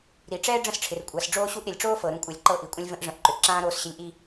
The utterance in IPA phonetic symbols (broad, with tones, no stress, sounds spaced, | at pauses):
ɾ i˩ ʈ͡ʂ ɛː˥ ɖ͡ʐ ə̃˥ s ʈ͡ʂʰ ɪ˩ r kʷʼ a˩ s ɖ͡ʐ oː˥ ɕ u˥ ʔ ɾ ɪ˩ lʲ ʈ͡ʂ oː˥ f ɤ˩ ɾ ũ˧ kʷʼ ɛ˩ lʲ ǃ ɤ˧ ʔ i˩ kʷʼ ə̃˥ lʲ v ə̃˧ ʔ ʐ ə̃˩ ʔ ǃ ʏ˩ ʔ ǁ ãː˥ ɾ oː˧ s ɕ ɪ˧ lʲ ʔ i˧